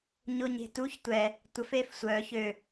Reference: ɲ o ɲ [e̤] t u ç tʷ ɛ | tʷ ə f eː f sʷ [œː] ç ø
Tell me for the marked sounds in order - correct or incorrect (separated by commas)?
correct, correct